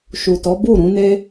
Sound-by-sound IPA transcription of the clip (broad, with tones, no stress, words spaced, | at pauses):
ʃu˨tɔ˨˦ bu˦˨ɾũ˨˦ne˦